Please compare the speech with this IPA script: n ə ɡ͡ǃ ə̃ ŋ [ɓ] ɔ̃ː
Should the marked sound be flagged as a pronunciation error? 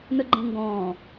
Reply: yes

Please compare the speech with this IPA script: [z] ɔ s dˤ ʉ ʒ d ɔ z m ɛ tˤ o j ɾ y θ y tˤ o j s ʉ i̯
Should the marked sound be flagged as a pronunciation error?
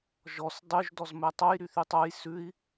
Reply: yes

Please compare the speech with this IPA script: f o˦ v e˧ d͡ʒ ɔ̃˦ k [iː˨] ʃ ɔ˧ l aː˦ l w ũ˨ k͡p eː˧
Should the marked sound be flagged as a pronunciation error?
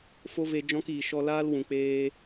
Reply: no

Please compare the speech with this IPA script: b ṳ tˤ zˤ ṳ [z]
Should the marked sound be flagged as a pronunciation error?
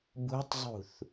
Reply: yes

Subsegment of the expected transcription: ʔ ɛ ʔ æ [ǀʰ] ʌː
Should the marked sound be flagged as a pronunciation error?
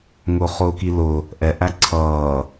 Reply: no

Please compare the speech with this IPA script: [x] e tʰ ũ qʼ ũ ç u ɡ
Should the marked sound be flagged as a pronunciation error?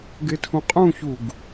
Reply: yes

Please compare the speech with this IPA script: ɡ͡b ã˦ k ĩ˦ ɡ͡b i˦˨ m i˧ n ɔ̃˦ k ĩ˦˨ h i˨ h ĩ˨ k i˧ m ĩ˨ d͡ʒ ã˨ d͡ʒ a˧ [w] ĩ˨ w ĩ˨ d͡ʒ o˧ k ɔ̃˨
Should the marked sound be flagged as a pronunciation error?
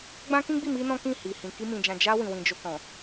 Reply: no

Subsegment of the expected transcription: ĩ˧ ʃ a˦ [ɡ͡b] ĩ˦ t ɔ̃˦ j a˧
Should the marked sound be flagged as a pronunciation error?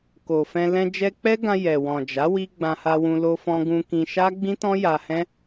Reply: no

